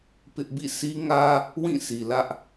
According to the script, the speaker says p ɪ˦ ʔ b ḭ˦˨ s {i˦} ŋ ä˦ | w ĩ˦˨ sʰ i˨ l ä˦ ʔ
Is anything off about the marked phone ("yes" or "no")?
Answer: no